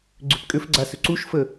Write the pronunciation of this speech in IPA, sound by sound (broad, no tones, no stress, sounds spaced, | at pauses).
ɡ͡ǀ ʏ p kʼ ʏ f ɡ͡ǀ a s ʏ ǀ u ʃ f ə